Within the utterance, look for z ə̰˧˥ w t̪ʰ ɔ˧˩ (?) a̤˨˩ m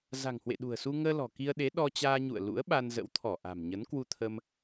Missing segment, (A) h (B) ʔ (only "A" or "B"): B